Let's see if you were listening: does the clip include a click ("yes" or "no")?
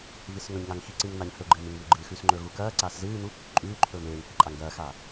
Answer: yes